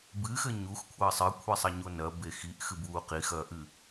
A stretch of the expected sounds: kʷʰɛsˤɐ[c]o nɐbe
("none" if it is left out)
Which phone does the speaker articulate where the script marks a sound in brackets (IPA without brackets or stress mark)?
ɲ